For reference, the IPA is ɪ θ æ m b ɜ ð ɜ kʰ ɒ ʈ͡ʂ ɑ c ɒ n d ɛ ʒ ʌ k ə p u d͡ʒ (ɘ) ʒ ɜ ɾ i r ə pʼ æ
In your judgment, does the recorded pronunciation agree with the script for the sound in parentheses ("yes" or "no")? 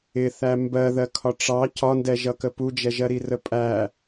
no